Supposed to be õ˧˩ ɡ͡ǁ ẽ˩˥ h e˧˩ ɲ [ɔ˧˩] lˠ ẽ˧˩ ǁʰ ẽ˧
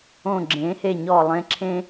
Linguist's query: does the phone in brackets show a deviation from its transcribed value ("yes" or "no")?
no